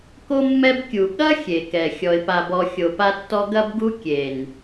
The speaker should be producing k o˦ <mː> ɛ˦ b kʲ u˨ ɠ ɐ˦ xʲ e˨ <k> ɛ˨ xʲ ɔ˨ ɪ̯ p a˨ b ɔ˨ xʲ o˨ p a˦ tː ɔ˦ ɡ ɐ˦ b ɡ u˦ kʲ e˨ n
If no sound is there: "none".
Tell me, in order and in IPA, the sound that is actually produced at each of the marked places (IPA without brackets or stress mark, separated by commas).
mː, k